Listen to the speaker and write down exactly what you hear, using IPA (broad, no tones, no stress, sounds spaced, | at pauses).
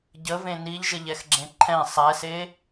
ɟ ə v ẽ n i ʎ ʒ ə ʎ ɛ x ɡ͡ǁ ẽ ǃʰ ɛ̃ sˤ ɛ s e